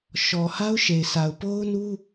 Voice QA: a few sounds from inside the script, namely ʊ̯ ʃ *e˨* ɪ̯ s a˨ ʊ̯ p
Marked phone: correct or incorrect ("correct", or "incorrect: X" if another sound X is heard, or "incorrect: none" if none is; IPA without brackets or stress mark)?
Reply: correct